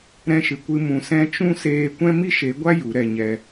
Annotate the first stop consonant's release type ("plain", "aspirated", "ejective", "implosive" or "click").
plain